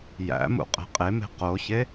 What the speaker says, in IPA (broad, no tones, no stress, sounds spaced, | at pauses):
j æ̰ m ṵ qʼ e̤ qʼ e m e̤ q o ç e